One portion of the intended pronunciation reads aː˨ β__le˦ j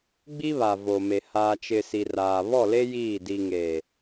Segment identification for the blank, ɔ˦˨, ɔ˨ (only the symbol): ɔ˦˨